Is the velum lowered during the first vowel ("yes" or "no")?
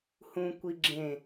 yes